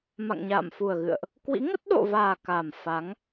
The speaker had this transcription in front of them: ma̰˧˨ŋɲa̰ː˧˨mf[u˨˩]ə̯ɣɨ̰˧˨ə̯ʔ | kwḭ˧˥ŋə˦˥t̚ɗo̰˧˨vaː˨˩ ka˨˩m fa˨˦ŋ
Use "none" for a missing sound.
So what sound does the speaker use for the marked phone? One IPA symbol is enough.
u˨˩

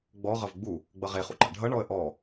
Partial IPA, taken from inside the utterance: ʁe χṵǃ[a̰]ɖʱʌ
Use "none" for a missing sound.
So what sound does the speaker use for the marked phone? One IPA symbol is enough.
a̰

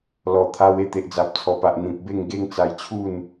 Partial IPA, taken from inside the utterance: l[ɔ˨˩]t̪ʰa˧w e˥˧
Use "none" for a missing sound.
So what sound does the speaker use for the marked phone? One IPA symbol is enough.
ɔ˨˩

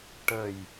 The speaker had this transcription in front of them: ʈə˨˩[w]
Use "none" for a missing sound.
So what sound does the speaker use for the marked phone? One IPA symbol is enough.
j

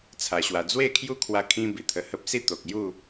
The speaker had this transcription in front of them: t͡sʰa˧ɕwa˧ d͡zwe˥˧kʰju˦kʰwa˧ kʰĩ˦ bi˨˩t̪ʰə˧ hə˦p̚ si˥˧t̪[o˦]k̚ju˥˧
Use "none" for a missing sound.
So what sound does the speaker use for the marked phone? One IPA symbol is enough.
o˨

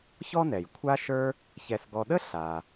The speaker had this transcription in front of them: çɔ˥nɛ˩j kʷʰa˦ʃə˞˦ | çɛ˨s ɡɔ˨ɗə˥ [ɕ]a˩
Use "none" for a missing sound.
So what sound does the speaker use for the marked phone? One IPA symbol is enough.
ɬ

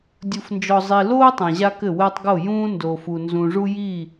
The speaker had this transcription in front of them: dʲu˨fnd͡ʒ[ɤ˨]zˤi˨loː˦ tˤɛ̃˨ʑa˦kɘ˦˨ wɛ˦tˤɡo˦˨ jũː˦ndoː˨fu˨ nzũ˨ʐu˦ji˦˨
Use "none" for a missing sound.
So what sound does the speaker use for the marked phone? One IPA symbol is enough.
ɔ˨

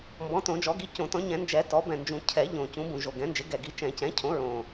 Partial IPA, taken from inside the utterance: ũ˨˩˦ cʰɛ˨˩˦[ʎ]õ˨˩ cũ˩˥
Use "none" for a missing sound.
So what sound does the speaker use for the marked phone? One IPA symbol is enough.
ʎ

